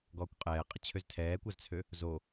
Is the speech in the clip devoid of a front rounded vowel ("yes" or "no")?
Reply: no